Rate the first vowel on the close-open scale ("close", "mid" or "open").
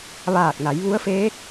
open